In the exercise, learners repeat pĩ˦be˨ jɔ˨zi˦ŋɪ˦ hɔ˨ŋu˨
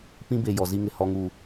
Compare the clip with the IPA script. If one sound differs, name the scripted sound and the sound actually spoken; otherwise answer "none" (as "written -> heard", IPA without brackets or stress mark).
ɪ˦ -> ɪ˨